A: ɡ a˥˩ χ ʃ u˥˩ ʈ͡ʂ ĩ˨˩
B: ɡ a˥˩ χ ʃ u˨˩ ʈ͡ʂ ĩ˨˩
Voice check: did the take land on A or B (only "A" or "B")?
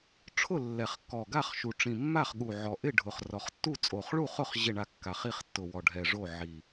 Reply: B